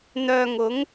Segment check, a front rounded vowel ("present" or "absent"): present